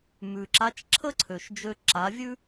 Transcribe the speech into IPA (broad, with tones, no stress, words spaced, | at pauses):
mʉ˩ǁa˧˥t͡ʃ ǁʰə˥ǀʰø˩ʃd͡ʒø˧ ǁa˩˧vʲʉ˥